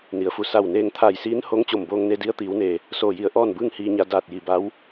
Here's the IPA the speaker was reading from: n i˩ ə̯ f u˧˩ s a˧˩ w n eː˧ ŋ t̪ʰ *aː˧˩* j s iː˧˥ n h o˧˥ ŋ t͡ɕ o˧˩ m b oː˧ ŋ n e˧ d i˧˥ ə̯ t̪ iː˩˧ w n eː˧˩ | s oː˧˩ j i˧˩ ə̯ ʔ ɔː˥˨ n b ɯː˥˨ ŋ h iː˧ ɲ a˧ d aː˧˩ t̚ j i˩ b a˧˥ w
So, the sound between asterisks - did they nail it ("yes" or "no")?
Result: yes